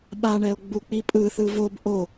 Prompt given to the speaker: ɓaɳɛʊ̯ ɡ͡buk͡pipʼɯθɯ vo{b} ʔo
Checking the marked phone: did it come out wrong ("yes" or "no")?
no